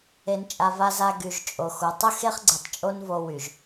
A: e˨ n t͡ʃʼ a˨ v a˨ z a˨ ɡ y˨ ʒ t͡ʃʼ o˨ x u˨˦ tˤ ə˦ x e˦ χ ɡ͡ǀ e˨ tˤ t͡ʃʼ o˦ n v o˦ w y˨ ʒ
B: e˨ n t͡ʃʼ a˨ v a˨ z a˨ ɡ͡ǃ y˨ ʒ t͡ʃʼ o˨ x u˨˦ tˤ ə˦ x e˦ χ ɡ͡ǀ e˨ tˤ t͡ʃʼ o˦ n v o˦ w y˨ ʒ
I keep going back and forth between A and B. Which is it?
A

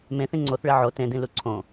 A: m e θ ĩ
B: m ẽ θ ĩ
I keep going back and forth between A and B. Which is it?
B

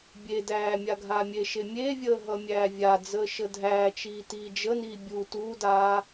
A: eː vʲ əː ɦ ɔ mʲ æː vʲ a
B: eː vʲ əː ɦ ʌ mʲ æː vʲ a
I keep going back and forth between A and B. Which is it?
B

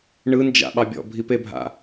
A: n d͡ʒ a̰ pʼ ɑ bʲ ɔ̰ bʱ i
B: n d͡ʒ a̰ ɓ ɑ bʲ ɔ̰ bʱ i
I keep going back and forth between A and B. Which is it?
B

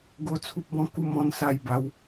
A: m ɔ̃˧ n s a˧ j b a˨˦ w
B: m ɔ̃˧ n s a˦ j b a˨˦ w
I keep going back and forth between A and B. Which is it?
A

